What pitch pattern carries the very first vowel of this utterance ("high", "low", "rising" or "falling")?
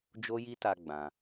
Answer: high